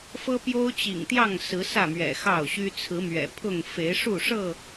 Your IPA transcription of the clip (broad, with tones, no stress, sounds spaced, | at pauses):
f ɤ˦ p j o˦ ʊ̯ t͡ɕ ḭ˨˩ ŋ t̪ j ɑ˥˨ ŋ s ɹ̩˨˦ s ä˥˨ m ɥ ɛ̰˨˩ x ɑ˥˨ ʊ̯ ɕ y˦ t͡sʰ ɹ̩˨˦ m ɥ ɛ̰˨˩ pʰ ʊ˥˨ ŋ f e˨˦ ɪ̯ ʂ u˥˨ ʂ ɤ˥˨